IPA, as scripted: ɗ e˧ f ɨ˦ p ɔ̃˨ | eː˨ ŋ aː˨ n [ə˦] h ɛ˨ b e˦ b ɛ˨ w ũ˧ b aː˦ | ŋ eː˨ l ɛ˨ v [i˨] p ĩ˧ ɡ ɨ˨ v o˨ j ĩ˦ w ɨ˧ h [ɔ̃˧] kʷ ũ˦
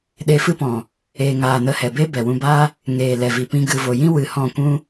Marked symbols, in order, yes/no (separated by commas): no, yes, no